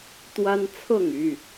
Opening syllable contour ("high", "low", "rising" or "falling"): high